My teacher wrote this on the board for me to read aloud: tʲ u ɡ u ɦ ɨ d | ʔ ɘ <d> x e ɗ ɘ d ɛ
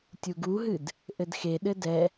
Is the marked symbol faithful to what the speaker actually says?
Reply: yes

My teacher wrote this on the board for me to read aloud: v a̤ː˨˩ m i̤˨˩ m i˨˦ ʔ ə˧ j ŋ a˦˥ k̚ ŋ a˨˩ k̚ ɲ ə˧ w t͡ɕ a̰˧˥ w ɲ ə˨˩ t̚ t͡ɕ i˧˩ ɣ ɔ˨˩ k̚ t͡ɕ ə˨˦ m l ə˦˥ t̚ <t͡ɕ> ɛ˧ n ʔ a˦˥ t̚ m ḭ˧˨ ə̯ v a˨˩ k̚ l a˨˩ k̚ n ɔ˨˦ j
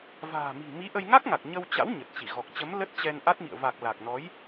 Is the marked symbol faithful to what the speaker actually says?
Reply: yes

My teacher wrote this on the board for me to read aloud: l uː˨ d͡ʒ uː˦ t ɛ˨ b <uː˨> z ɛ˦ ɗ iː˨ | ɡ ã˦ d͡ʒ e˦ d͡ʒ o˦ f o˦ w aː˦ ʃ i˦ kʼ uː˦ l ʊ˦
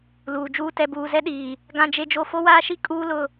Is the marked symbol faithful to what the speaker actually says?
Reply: yes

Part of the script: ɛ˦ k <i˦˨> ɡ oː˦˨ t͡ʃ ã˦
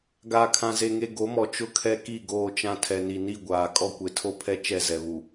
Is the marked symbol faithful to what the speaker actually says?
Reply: yes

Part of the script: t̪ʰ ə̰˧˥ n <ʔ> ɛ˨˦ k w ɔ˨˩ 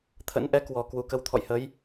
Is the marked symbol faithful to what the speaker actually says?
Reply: yes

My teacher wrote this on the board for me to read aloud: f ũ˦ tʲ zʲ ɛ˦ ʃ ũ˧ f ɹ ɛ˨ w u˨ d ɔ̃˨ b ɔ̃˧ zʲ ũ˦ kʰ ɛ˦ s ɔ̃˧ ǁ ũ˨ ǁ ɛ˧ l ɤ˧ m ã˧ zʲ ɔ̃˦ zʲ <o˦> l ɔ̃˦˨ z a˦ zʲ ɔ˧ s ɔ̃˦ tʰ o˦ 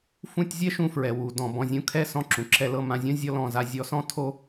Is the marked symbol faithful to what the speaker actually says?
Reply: no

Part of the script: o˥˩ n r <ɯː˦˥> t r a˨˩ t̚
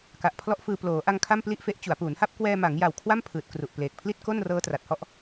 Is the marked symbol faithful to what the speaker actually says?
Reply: no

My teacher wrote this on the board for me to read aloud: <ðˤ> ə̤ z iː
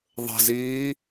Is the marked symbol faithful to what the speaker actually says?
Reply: yes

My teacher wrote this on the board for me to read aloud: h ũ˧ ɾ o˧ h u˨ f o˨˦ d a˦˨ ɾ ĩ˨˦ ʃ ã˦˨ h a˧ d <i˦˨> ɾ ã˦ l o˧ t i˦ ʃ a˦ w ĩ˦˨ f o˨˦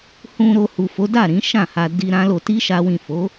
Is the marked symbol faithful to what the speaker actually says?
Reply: no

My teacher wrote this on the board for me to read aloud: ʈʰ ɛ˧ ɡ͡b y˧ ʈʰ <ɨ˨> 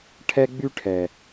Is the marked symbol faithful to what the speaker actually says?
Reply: no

